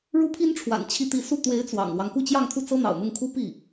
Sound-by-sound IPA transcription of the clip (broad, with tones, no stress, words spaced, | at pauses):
ɻu˥pʰi˥nʈ͡ʂʰwa̰˨˩n t͡ɕʰi˥˧t̪i˥˧ su˥˩ t̪we˧˥ɪ̯ t͡swɑ̰˨˩ŋlwɑ˦ŋ ku˥˧t͡ɕjɑ˥˧ŋt̪ʰu˥˩ t͡sɤ˥n̪ɑ̰˨˩ʊ̯n̪ʊ˥˩ŋkʰu˥ pi˥˩